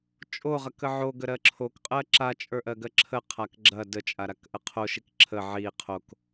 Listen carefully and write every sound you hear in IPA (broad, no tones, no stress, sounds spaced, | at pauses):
t͡ʃʼ o ʁ ɐ k ə ʕ o ɡ ə ɾ ɜ ǁʰ o k qʼ ɜ ǁ a t͡ʃʼ ə˞ ʔ ɜ ɡ ɜ ǁʰ ə qʰ a k ɡ͡ǁ ɐ d ə t͡ʃʼ a ɾ a k ʔ ə qʰ o ʃ i k ǁʰ ə ʕ i qʰ o k